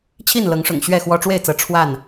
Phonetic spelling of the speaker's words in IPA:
t͡ɕʰ i˥˨ n l ɤ˨˦ ŋ ʂ ʊ̰˨˩ ŋ ɕ ɥ ɛ˥˨ x w ɔ˦ ʈ͡ʂ w e˥˨ ɪ̯ t͡s ɤ˨˦ ʈ͡ʂʰ w a˥˨ n

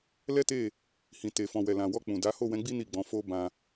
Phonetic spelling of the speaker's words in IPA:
l ɛ˦ t e˦˨ | h ĩ˨ t e˨ f ɔ̃˨ w ɛ˨ l ã˨ w ɔ˧ k͡p ũ˨ d a˨˦ h o˦˨ w ɛ̃˨˦ ɡ͡b i˦ n i˦˨ ɡ͡b ɔ̃˨˦ f o˦ b ã˧

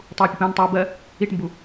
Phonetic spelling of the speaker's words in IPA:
tˤ uː pʲ ɛ p ə̃ː n tˤ uː b ɜ | i ʈ m b u

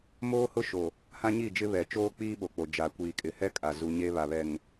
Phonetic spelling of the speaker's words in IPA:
m oː˦ h ʊ˦ ʃ o˨ | h ã˦ ɲ i˦˨ d͡ʒ ɪ˦ β ɛ˨ t͡ʃ oː˦ k͡p iː˦ ɓ o˨ k͡p o˨ d͡ʒ a˨ kʷ iː˨ kʼ ɪ˨ h ɛ˦ kʼ a˨ z u˦ ɲ e˦ β a˨ β ɛ˨ ŋ

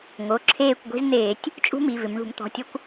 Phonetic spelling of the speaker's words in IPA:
ŋ o˩˧˩ ǁʰ eː˦˨ kʷ ɡʷ i̤˦ z n̪ eː˧˩˧ tʲ | t͡ʃʼ ṳ˦ m i˩˧˩ v ɪ˩˧ m ɳ ṳ˧˩˧ m t̪ ɔ̤˩˧˩ tʲ ɔ˦ kʷ

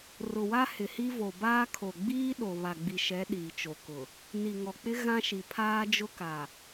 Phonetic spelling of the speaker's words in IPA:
r ʊ˨ w a˦ h ɪ˨ h i˦ v o˨ b aː˦ kʰ o˨ ɡ͡b iː˦ ɗ o˨ β a˨ ɡ͡b i˨ ʃ ɛ˨˦ ɗ iː˨ t͡ʃ o˨ k ʊ˨ | n i˨ ŋ ɔ˨ k͡p ɪ˦ ɣ ã˦ ʃ i˨ pʰ aː˦ d͡ʒ ʊ˦ k a˨

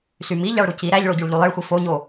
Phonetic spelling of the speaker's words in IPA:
s y m i ʎ ɑ ɭ ɾ u c i ɾ æ ʎ ɭ o ɟ u ɭ ʎ u lˠ e ɭ xʷ i f o ɲ o

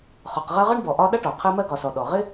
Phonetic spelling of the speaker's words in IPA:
χ ɒ˨ q ʁ ɜ˦ ʁ ʌ˥ ɳ b ɔ˨ ʔ ɒ˦ ɗ ʌ˥ ʈ ɔ˩ qʰ ɜ˦ m ɜ˦ ɡ ɒ˩ s ɔ˩ ɗ ɔ˩ ʁ ɪ˦

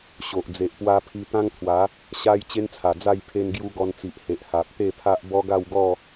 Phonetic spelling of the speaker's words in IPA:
ɕ o˨ ʔ d͡z e˨ ʔ p w a˧ pʰ i˧ t̪ ã˦ ŋ t̪ʰ w a˨˦ | ɕ a˦ j t͡ɕ e˦ n t͡sʰ a˨˩ d͡z a˥˧ j pʰ e˧ n ɡ j u˧ ɡ ɔ˧ n t͡s i˨ ʔ h e˨ ʔ h a˨ p̚ t̪ e˥˧ pʰ a˦ ʔ b ɔ˦ ɡ a˥˧ w ɡ ɔ˥˧

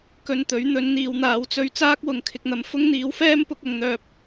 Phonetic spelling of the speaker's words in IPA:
k ɵ˧ n t̪ ɵ˨˥ ɥ n̪ ɵ˨˥ n n̪ iː˨˧ w n̪ aː˨˥ w t͡s ɵ˧ ɥ t͡s aː˥ k̚ w ʊ˨ ŋ kʰ ɪ˧ k̚ n̪ ɐ˧ m f ʊ˥ ŋ n̪ iː˨˥ w f ɛː˥ m p ʊ˧ k̚ ɐ˧ ŋ n̪ œː˧ p̚

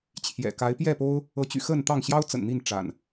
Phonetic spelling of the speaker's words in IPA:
t͡ɕʰ j ɛ̰˨˩ k a˨˦ ɪ̯ p j ɛ˥˨ p o˦ ʊ̯ | ɤ˨˦ t͡ɕ y̰˨˩ x ə˥˨ n t̪ ɑ˥˨ ŋ ɕ j ɑ˦ ʊ̯ t͡s ə̰˨˩ n n̪ i˥˨ n ʈ͡ʂ a̰˨˩ n

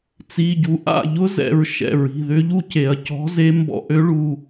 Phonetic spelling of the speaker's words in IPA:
t͡s i˩˧˩ ɟ u˩˧ ʔ a̰˥˩ ʎ ʊ˦˥ z ɛ̰˩˧˩ ɹ ʃ ɛ̰˩˧˩ ɹ i̤˩˧˩ ð ʏ˦˥ ʎ u˦˥ c e˩˧ ɐ̯ c ɔ̤˨˥ z e˨˥ m b ɔ̰˩˧ ʔ ø˨˥ ɭ u˩˧˩

